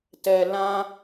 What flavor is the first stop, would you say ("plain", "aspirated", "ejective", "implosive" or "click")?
plain